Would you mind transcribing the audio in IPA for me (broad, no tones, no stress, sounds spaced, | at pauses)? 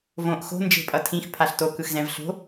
v õ ʔ x o̤ n d͡ʒ e̤ pʼ ʌ tʰ ĩ x pʰ a ɬ t o k ɯ x z ɛ̃ v ɬ o̤